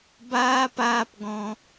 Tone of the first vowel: high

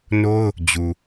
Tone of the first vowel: high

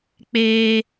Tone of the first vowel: high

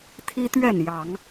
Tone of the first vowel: high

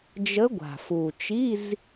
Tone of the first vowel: rising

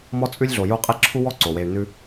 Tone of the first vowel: high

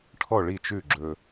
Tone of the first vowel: falling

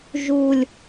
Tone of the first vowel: high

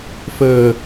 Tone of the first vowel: low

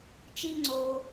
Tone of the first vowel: high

